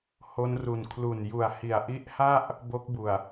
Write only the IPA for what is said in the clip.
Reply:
h o˦˥ n r u˨˩ n kʰ l u˨˩ n j u˨˩ a̯ h i˨˩ a̯ ʔ i˦˥ ʔ h a˥˩ ʔ | b o˦˥ k̚ b u˨˩ a̯

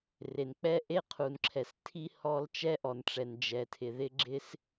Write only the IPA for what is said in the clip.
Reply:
r e˩ n k͡p ɛ˥ ʔ e˥ qʰ u˩ n ǁʰ ɛ˩ s tʰ i˥ h ɔ˥ l t͡ʃ ɛ˥ ʔ ɔ˩ n ʈ͡ʂ ɛ˩ n d͡ʒ ɛ˩ tʰ ɪ˩ ð ɪ˥ ɡ͡ǁ ɪ˥ s

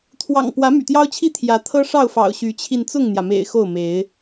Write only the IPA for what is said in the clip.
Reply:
t̪ʰ w ɑ̰˨˩ ŋ p w ä˨˦ m y̰˨˩ t̪ j ɑ˦ ʊ̯ t͡ɕʰ i˥˨ t̪ʰ j ä˨˦ t̪ʰ ɤ˦ ʂ ɑ˥˨ ʊ̯ f ɑ̰˨˩ ʊ̯ ɕ y˨˦ t͡ɕʰ i˧ n t͡s ʊ˥˨ ŋ n̪ j ä˩ m ḛ˨˩ ɪ̯ x o˥˨ ʊ̯ m e˨˦ ɪ̯

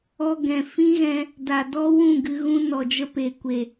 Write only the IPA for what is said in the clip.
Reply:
ɔ˧ ɡ ɛ̃˨ f ĩ˦ ɣ ɛ̃˧ | d a˨ d ɔ˦ w ũ˦˨ ɡ ɨ˧ ɣ ũ˦ n ɔ˨ d͡ʒ ə˧ p e˨ kʷ e˨

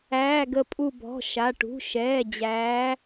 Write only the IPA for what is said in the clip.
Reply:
æː˩˧˩ ɡ ə˧˩ pʼ u˧˩ b ɔ̤˩˧˩ ʃ a˩˧˩ ʈ ṳ˩˧˩ ʃ ɛː˩˧˩ d͡ʑ æː˨˦

